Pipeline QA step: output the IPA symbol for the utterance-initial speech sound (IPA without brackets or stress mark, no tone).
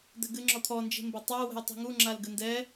d̪